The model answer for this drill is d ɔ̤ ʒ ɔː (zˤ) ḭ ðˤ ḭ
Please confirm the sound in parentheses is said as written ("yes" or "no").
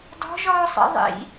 no